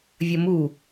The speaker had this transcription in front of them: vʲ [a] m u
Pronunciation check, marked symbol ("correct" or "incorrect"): incorrect